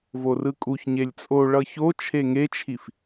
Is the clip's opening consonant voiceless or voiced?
voiced